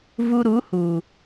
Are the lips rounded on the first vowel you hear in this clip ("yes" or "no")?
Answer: yes